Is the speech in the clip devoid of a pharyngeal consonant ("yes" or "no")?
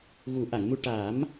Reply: yes